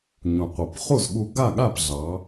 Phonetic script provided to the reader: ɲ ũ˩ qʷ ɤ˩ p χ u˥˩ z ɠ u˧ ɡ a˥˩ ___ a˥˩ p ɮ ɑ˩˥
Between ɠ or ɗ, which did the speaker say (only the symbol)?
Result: ɠ